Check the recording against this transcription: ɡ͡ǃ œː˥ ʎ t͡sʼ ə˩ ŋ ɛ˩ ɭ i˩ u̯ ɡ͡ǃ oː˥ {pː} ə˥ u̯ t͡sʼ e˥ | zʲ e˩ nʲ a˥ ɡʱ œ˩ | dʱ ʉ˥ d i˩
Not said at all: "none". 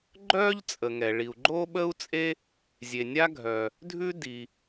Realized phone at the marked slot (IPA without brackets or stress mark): ɓ